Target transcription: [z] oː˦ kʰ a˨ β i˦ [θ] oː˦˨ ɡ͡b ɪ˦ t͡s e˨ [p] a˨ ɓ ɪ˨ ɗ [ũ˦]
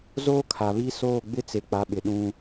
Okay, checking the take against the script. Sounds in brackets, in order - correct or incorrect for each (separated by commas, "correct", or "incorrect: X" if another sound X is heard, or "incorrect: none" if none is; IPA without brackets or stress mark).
correct, incorrect: s, incorrect: k͡p, correct